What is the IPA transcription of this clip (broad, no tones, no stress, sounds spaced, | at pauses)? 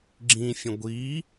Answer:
ɡ͡ǁ ĩ fʲ ə̃ ɡʷ i